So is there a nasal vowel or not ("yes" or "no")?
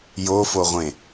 yes